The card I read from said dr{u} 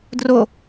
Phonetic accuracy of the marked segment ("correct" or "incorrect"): incorrect